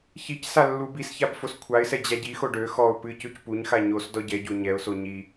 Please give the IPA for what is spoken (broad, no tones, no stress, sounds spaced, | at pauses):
ç i c s a lː u b i s ç a b f o s kʷʰ a ɪ̯ s ɛ d͡ʑ a ɟ i x o ɖ ø x ɔ ʊ̯ p ɨ c ø c p u ɲ x a ɲ o s d ɔ ɟ ɛ ɟ o ɲ ɛ ʊ̯ s o ɲ i